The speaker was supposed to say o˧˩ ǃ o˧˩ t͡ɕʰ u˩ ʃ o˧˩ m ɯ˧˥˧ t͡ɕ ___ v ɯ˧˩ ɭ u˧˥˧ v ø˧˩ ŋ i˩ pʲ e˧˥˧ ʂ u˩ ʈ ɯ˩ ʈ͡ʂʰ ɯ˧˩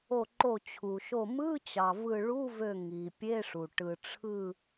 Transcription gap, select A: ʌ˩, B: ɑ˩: B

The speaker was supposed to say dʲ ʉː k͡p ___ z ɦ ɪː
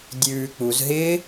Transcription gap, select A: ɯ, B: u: B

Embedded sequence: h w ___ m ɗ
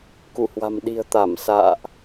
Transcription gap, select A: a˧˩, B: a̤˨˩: B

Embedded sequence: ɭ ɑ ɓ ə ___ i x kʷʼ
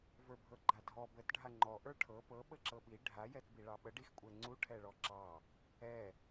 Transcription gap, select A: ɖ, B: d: A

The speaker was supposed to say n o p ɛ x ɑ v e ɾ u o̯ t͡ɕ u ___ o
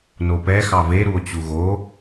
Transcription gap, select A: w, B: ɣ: B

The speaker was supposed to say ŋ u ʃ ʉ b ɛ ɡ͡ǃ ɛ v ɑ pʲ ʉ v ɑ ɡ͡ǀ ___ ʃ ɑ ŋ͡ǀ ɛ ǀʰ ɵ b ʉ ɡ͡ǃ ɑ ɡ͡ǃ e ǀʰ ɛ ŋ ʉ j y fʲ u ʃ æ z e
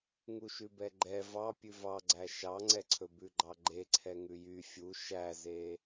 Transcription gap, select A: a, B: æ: B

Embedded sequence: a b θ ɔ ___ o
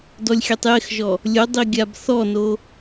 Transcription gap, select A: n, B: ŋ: A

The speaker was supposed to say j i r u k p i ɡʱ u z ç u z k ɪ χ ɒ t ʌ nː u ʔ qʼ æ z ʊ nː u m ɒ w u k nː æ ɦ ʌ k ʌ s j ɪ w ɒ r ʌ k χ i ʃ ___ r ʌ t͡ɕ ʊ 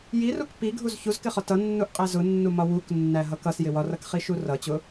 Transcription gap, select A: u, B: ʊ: A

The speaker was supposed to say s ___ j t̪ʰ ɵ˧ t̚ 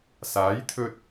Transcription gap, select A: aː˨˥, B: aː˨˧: A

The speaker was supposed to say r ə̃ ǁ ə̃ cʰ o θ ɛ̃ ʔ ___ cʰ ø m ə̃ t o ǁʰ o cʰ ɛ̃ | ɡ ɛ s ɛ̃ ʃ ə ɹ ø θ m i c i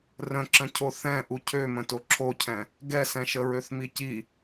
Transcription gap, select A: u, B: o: A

